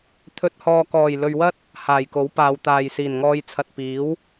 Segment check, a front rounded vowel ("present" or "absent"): absent